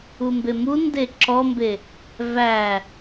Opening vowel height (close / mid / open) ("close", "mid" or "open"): close